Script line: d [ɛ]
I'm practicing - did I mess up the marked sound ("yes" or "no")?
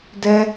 no